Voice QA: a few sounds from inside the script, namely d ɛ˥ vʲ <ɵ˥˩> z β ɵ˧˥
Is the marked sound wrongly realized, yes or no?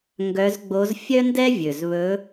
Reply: yes